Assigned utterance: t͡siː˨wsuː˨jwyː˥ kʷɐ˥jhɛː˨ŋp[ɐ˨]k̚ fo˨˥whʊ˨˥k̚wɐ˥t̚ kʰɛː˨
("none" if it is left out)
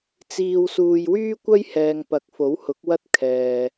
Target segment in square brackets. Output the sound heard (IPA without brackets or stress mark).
ɐ˨